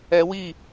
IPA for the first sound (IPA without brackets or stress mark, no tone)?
ɛ